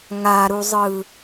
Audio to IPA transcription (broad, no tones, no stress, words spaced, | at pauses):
ŋaɾuzˤɯ